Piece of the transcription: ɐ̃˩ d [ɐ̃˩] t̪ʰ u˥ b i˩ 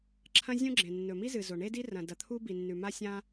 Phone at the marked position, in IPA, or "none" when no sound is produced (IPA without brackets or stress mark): ɐ˩